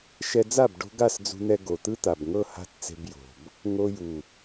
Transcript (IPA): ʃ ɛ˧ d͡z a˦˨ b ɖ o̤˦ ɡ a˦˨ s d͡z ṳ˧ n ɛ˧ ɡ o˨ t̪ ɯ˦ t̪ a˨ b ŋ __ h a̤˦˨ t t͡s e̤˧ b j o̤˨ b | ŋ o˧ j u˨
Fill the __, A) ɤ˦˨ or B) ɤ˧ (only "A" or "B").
A